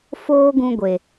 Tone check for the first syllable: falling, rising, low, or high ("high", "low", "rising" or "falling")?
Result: high